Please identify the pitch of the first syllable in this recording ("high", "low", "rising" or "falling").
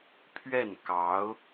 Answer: falling